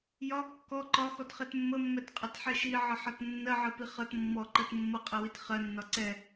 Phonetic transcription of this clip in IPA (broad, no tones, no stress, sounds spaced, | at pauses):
j ɒ kː ɔ ǃ ɒ x ɔ t χ ɛ t mː ə mː ɛ t qʼ ʌ t ħ ɛ ʃ i ʕ ə ħ ɒ t nː ɜ ʕ ɜ p i χ ʌ t mː ɔ ǃ ɜ t mː ʌ qʼ ɛ w i t χ ɜ nː ɒ ǀ ɛ